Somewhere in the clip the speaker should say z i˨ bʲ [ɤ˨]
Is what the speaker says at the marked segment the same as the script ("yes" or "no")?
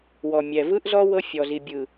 no